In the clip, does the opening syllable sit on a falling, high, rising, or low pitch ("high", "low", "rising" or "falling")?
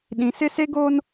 high